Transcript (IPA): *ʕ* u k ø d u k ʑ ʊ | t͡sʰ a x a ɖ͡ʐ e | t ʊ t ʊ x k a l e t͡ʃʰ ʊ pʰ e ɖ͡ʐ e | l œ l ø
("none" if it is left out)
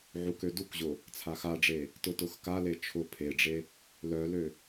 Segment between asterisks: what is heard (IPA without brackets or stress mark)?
ʕ